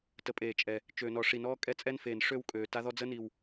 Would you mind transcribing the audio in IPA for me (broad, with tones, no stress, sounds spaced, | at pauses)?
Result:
t ə˨ pʼ eː˨ t͡ʃʼ ɛ˨ | t͡ʃ øː˨ n ɔ˨ ʂ i˨ n ɔː˦ kʼ ɛ˦ t͡sʼ ɛ˦ n f eː˨ n ʂ ø˦ w kʼ øː˨ t a˦ ð ɔ˦ d͡z ə˦ n i˨ w